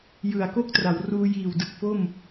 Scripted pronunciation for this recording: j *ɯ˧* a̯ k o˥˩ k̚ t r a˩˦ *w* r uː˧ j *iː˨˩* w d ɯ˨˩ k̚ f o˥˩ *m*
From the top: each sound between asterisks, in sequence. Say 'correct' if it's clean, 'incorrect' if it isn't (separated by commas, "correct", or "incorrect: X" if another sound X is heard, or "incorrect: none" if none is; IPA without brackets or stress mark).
incorrect: ɯ˨˩, correct, correct, correct